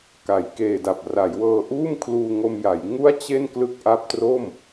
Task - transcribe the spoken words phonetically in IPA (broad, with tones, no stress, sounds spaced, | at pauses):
k a˩˦ j k eː˨˩ d a˨˩ p̚ r a˩˦ j w ɤː˧ ʔ uː˥˩ m kʰ l uː˧ ŋ o˧ m j a˩˦ j ŋ u˥˩ a̯ t͡ɕ e˥˩ n k l ɯ˦˥ k̚ ʔ a˦˥ p̚ t r o˥˩ m